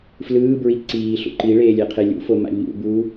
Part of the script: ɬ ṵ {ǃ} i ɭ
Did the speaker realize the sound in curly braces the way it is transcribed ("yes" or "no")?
yes